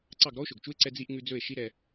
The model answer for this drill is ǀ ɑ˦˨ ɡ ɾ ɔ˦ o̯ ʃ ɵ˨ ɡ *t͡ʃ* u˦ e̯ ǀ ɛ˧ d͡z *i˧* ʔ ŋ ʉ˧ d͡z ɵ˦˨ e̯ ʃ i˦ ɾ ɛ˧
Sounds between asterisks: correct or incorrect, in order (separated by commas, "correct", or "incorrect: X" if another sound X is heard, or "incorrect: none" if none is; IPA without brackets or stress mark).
correct, correct